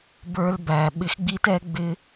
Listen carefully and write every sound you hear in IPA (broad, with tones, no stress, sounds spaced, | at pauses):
b ə˞˧ l b æ˨ ɓ ɪ˧ x ɡ͡b i˦ t ɛ˦ ɡ͡b ɪ˧